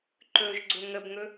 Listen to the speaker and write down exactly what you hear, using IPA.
ǃ ɵ ʒ ɡ͡ǀ ɵ ŋ ə b ŋ ɵ

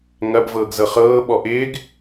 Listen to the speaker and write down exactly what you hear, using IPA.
ŋ ɐ b v ɤː ɡ z ɤ χ ɤː ɓ ɔ ʔ ɪː ɡ

